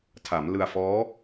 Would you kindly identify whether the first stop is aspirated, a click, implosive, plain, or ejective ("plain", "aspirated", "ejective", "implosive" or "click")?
aspirated